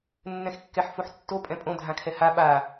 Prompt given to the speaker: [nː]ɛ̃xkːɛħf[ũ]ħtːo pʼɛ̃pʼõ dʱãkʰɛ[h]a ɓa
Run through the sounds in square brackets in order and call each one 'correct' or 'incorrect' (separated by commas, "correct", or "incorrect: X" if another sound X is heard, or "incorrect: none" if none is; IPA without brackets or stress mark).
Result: correct, incorrect: u, correct